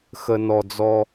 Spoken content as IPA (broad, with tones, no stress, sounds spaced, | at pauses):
x ə˨ n ɔ˨ d͡z ɔ˦